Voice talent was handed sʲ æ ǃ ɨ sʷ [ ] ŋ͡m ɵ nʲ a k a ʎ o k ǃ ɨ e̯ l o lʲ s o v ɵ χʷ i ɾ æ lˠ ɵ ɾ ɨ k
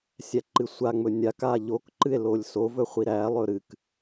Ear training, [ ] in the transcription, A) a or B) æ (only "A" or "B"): A